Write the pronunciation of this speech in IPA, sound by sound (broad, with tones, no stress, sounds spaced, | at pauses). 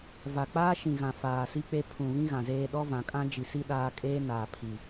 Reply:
v a˨ k͡p aː˦ ʃ ĩ˨ ɣ ã˨ f aː˨ s i˦ k͡p e˦ pʰ ũ˨ β ĩ˦ ɣ ã˨ z eː˦ ɗ ɔ˦ v ã˨ kʼ ã˦ d͡ʒ i˨ s i˦ ɗ aː˦ kʼ eː˦ n aː˨ pʰ i˨